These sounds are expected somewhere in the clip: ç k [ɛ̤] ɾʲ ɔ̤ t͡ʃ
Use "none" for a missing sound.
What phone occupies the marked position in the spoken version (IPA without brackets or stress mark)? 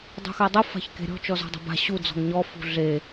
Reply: e̤